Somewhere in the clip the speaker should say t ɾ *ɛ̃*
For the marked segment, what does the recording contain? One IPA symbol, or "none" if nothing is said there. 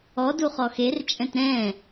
ɛ̃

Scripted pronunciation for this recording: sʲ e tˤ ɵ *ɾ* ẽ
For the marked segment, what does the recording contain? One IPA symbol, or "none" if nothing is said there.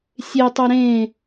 ɾ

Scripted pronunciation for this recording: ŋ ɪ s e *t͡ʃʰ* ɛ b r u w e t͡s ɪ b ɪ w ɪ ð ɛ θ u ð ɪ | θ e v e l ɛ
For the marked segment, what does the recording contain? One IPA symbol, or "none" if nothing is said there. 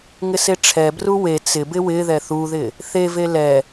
ʈ͡ʂʰ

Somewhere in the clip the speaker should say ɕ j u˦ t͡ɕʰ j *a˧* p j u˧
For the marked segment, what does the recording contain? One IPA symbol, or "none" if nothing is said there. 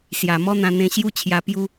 a˧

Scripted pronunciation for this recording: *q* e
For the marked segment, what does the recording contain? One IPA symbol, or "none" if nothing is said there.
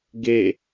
ɡ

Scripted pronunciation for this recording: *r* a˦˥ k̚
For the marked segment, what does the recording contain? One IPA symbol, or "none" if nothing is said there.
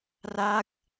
r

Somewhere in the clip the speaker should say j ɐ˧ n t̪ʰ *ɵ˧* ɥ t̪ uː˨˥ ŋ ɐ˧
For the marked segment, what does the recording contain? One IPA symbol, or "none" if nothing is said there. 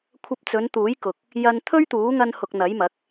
ɵ˥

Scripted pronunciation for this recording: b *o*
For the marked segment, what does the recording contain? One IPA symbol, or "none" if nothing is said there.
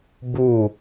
u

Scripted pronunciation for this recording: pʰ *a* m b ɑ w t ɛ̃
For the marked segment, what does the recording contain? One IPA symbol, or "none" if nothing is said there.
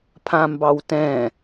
ã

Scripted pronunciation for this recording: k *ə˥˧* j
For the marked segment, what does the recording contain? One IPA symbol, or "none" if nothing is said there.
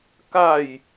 a˥˧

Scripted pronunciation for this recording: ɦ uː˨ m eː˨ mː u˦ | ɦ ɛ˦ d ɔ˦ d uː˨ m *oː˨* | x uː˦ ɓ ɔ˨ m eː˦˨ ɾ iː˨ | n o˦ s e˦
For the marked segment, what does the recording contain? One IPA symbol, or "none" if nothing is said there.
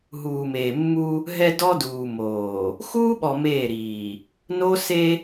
oː˨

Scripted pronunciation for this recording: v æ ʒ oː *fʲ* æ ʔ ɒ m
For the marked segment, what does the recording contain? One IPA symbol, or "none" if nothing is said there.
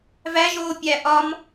pʲ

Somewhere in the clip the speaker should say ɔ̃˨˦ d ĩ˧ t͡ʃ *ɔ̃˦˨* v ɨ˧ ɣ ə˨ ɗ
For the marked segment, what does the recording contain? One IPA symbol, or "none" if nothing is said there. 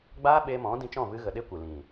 ɔ̃˦˨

